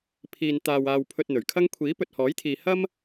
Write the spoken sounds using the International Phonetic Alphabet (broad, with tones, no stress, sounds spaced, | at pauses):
pʰ iː˧ n t̪ aː˧ w aː˧ w pʰ ɵ˧ t̚ n̪ ɵ˨˩ ɥ kʰ ɐ˥ ŋ kʷʰ iː˨˥ p ɵ˨ t̚ h ɔː˨˥ j t̪ʰ iː˨ h ɐ˥ m